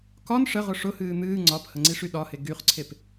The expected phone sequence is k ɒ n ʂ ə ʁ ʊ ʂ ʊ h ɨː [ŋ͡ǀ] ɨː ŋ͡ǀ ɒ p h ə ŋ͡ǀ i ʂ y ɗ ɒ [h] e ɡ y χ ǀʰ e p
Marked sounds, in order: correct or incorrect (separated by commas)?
incorrect, correct